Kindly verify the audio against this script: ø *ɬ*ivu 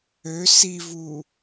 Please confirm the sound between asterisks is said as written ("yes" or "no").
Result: no